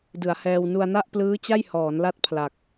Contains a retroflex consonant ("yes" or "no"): no